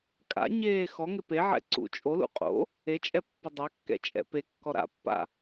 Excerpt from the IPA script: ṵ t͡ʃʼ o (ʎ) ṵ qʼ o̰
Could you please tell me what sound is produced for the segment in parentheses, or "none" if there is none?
l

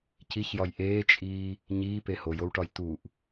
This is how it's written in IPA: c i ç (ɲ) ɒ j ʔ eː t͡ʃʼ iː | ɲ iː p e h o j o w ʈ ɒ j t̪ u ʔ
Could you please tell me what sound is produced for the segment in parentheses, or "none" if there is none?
j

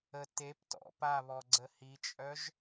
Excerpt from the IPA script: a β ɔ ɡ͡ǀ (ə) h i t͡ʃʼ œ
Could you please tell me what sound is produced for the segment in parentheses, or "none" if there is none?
ə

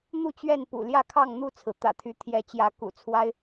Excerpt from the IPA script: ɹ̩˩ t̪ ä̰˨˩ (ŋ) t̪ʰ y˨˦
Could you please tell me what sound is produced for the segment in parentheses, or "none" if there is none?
none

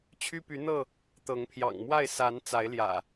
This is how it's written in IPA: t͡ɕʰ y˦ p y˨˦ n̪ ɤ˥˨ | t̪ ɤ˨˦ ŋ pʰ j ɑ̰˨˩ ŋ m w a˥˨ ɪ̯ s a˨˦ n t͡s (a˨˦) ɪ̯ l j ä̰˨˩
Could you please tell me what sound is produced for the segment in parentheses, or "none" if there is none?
a˨˦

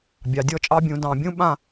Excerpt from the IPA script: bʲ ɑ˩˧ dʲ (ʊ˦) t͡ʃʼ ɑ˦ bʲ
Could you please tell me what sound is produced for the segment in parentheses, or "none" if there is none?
ɔ˦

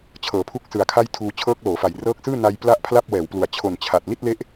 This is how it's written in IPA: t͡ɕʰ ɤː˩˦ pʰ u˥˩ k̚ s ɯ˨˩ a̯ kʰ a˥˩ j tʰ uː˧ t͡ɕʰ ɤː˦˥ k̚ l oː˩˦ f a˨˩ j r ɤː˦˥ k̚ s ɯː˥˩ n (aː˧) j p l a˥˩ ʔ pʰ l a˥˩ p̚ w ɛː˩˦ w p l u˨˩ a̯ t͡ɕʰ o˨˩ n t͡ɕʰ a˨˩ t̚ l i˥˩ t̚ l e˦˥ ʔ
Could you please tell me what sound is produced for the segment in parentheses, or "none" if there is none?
a˧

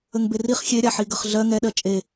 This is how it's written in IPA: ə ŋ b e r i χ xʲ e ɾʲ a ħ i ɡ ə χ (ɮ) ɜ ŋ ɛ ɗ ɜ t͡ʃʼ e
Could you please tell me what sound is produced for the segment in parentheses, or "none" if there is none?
ɮ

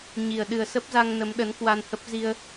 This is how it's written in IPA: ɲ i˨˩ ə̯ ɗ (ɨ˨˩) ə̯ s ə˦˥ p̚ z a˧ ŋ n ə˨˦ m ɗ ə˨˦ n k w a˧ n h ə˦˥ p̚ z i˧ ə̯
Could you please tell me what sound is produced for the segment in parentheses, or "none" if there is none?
ɨ˨˩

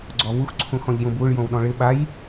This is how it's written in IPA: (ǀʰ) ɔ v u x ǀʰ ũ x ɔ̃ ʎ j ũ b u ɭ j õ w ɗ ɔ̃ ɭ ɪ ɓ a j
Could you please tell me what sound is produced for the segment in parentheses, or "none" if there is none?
ɡ͡ǀ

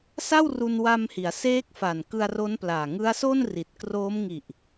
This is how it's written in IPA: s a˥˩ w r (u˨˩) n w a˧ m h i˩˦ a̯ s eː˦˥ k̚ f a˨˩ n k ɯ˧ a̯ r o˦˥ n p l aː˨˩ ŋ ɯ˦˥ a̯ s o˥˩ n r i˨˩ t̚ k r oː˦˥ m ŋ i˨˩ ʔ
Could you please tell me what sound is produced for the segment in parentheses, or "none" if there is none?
u˧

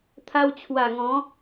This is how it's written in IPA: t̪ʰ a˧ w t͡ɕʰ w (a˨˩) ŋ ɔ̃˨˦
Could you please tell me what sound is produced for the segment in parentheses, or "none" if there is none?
a˨˩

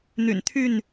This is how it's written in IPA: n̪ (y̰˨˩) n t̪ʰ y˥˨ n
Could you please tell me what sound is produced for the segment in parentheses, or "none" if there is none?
y̰˨˩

